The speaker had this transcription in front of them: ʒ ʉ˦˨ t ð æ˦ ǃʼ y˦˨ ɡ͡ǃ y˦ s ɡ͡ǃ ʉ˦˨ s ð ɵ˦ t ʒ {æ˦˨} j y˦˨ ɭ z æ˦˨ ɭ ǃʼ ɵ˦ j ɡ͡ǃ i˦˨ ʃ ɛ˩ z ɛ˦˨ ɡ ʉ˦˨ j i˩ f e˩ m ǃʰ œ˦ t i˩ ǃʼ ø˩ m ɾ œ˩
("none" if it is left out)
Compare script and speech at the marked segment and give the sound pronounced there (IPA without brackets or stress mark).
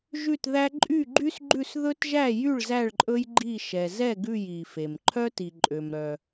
æ˦˨